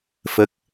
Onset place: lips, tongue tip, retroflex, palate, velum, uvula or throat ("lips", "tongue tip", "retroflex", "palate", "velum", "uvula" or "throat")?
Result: lips